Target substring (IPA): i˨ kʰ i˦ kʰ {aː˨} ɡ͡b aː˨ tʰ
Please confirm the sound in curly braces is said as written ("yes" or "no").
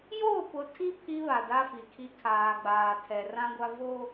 yes